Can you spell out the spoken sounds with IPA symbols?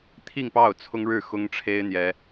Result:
t̪ʰ i˥˧ ŋ p ɑ˥˩ ʊ̯ t͡sʰ ʊ˥ ŋ ɻ ɻ̩˥˩ x ʊ˥ ŋ ʈ͡ʂʰ e˥ ɪ̯ n̪ j ɛ˥

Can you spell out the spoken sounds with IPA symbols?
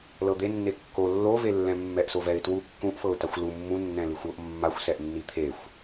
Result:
l ɤ d̪ e nː e kː o lː o v e lː ɛ̃ mː ɛ ʔ s o v ɛ ɪ̯ t w u kː ũ ʔ f ɤ ʊ̯ t a xʷ l u mː ũ nː ɛ̃ l i xʷ ɤ ʔ mː a xʷ s ɛ ʔ nː i t̪ʰ e xʷ

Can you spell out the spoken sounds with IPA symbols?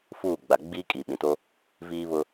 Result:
f uː˦˨ ɡ͡b a˨ ɡ͡b iː˦ kʼ i˨ ɓ ĩ˨ t o˦ | v iː˦ β ʊ˦

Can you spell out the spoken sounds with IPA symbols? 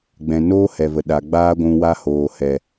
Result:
ɡ͡b ɛ̃˨ n oː˦ h ɛ˨ v ə˨ ɗ a˨ ɡ͡b aː˦ ɡʷ ũ˧ w a˧ h oː˨ h ɛ˨

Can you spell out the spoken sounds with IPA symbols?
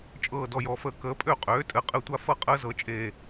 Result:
t͡ʃʼ ɤː˦˨ d ɔ˦˨ j ɔ˨˦ f əː˨˦ k əː˨˦ pʼ ø˦˨ qʼ øː˨˦ tʼ ɘ˨˦ qʼ ɘ˦˨ tʷ a˦ f ɤ˦ qʼ əː˦ z ɤ˨˦ t͡ʃʼ eː˦˨

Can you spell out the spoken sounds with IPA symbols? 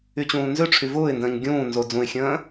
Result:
y t͡ɕ ũː n z ø ʈ͡ʂʰ y v ʊː ɪ̯ n d ə̃ː ɲ ɡʲ ũː n z o d͡z ũ ɪ̯ xʲ ə̃ː

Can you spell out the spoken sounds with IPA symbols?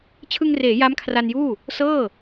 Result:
t͡ɕʰ ɯ˧ ŋ r eː˩˦ j a˦˥ m kʰ r a˧ n j uː˥˩ | s ɤː˥˩

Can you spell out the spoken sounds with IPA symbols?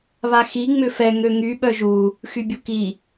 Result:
β a x i ŋ͡m ʏ f ɛ ŋ ø ŋ y ɓ œ ʒ u | x y bʲ u k i

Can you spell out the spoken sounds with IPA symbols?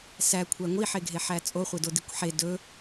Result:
s æ kʷʰ æ ŋʷ i ħ e ɡʱ e ħ æ t͡sʼ o χʷ e d o d i kʷ ħ e d ɵ

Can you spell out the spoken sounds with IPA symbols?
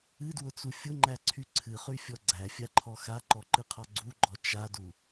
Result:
ɨ d w ʊ t͡s u fʲ ʊ ŋ͡ǃ æ ǀʰ y ǀʰ ɨ χ y fʲ ɔ ɡ͡ǀ æ fʲ a ǃʰ ɔ x a ǃ ɔ ǃ ɨ qʰ ɔ ɡ͡ǀ u ɡ͡ǃ ɔ t͡ʃ a d u

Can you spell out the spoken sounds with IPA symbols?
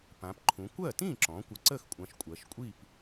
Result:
p ã˩˧ p ǃʰ ũ˩˧ kʷ ɜ˥˩ t ĩ˥˩ ǁ ɔ̃˩˧ kʷ ə˩˧ ǀ ə˥˩ x kʷʼ ã˩˧ ʃ kʷʼ ɜ˩˧ ʃ kʷʼ i˥˩ p

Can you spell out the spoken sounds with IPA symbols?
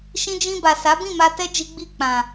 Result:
ʃ ĩ˧ d͡ʒ ĩ˧ b a˨ s a˨˦ b ĩ˦˨ m a˧ t ɛ˦ d͡ʒ i˦ ɡ͡b i˦˨ k͡p ã˨

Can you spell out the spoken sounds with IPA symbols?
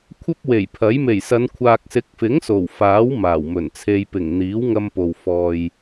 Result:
kʷʰ ɐ˥ p̚ w e˨˩ j pʰ ɐ˨˥ j m e˨˩ j s ɐ˨˧ n kʷʰ aː˨ k̚ s ɪ˨˥ k̚ f ɪ˨˥ ŋ s o˨˩ w f aː˨˥ w m aː˨˩ w m ɵ˨˩ n t͡sʰ e˧ j p ɪ˨˩ ŋ n̪ iː˨˥ w ŋ ɐ˧ m p o˨ w f ɔː˨ j

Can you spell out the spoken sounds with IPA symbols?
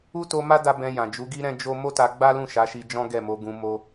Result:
u˦ t o˧ m a˦ d a˦ b ɛ̃˧ j ã˨ d͡ʒ u˨˦ ɡ i˦ ɾ ɛ̃˦ d͡ʒ o˦ m o˦ t a˧ ɡ͡b a˦ l ũ˦˨ ʃ a˨˦ ʃ i˧ d͡ʒ ɔ̃˦ ɡ ɛ˦˨ m o˨˦ ɡ ũ˧ m o˦

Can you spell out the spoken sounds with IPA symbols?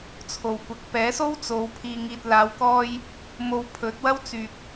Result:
t͡sʰ o˨ w kʷ ɐ˨˥ k̚ p ɛː˨˥ s o˥ w t͡s o˨˧ w pʰ iː˧ ŋ iː˧ t̚ l aː˨˧ w k ɔː˧ j | m o˧ w pʰ ɵ˨˥ t̚ w ɐ˥ w t͡s yː˧ k̚

